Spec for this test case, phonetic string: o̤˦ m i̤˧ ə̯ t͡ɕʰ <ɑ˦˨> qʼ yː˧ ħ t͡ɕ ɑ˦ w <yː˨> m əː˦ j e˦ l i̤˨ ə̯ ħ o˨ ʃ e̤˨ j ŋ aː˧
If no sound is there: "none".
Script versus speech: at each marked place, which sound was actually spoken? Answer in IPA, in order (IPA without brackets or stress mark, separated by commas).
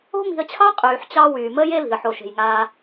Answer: ɑ˦, yː˨